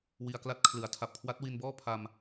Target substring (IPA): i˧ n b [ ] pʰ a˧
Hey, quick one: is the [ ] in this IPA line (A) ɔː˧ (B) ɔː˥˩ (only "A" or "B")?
B